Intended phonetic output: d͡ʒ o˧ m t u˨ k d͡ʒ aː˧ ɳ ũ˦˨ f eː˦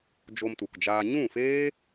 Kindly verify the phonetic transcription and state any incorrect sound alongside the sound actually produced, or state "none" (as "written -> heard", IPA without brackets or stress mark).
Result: ɳ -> ɲ